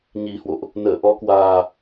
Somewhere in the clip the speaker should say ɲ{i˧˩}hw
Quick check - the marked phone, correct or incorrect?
incorrect: i˨˩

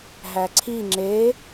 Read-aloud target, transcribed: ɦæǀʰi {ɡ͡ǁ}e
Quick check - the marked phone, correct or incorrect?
incorrect: ŋ͡ǁ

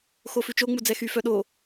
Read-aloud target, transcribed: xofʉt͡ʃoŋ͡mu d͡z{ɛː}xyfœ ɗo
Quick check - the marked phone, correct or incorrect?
incorrect: ɛ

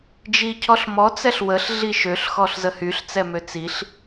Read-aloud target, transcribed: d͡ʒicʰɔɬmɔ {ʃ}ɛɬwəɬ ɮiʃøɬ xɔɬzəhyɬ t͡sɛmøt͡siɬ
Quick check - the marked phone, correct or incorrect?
incorrect: t͡s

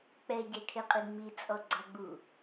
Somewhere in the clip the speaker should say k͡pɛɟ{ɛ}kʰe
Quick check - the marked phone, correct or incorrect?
correct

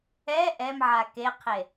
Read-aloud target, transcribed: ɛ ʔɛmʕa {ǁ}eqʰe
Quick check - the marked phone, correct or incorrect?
incorrect: k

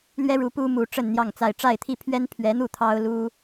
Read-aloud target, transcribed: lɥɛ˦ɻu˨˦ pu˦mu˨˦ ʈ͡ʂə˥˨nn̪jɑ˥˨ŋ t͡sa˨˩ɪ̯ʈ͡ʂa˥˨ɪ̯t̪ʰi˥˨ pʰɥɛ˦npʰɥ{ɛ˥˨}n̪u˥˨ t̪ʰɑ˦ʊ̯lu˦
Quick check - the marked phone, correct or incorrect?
incorrect: ɛ˨˦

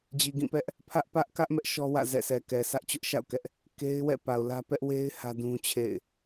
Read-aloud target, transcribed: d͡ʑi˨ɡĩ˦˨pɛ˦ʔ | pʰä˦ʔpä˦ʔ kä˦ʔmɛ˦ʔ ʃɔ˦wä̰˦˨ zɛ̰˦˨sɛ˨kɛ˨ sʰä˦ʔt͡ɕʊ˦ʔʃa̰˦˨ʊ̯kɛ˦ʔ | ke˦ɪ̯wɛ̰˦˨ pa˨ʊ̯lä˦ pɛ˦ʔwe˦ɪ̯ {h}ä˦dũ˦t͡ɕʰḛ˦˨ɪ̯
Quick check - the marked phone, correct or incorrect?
correct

